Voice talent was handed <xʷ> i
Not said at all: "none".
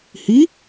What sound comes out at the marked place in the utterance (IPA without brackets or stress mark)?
h